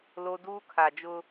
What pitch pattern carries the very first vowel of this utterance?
high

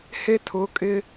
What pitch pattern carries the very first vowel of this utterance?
high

